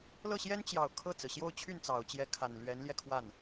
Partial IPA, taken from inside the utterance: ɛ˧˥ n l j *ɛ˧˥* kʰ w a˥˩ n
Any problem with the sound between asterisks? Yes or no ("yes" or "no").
yes